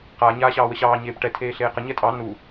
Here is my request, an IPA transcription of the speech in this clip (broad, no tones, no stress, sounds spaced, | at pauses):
q a ɲ aː ɕ ɑː w ə ɕ ɑː ɲ eː p ʈ ɛ tʰ eː ɬ eː q ə ɲ ɛ tʼ ɑ n u